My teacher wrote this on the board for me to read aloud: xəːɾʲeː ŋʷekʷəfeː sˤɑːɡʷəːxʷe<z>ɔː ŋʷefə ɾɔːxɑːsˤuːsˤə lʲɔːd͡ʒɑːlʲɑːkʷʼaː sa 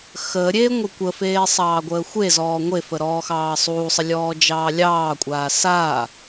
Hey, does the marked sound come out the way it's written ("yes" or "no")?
yes